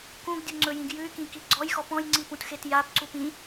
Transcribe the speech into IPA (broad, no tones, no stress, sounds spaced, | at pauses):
k ũ ɡ dʲ u ŋ͡ǀ ɵ j ĩ ɡ j ʉ y̯ k ĩ k i ɡ͡ǀ ɔ j x ɔ p ɔ̃ j ŋ͡ǀ i p ũ t x e t j a p ǀ u p ĩ